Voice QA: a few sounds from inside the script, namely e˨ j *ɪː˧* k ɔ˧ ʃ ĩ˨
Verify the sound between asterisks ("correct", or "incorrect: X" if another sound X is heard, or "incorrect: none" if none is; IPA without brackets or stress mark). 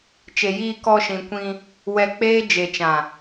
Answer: incorrect: iː˧